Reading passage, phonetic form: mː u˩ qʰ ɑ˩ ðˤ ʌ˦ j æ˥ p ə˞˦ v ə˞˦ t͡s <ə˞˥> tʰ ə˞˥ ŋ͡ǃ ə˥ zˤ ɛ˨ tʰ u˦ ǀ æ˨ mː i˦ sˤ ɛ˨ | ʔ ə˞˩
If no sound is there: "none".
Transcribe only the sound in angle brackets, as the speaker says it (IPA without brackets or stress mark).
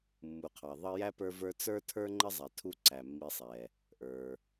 ə˞˥